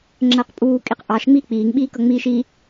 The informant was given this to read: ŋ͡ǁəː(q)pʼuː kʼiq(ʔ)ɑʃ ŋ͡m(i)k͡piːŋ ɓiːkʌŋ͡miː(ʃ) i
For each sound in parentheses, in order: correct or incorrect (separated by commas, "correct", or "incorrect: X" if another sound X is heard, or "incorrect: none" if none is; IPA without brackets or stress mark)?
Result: correct, correct, incorrect: iː, correct